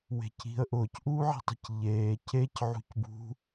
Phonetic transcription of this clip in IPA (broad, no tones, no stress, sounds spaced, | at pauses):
w e̤ c i̤ ə̯ ʔ ʊː c ʔ uː ʕ i̤ tˤ i̤ c ʎ eː c e c ʕ ṳ c b ṳ